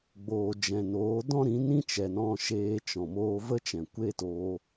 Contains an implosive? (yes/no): no